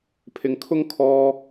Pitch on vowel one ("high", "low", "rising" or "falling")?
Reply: low